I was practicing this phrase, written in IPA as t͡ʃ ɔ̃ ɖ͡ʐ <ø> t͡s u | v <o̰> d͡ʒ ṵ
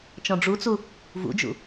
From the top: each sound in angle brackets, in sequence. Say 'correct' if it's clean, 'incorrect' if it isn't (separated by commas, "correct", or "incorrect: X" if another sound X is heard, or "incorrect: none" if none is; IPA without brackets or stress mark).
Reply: incorrect: u, incorrect: ṵ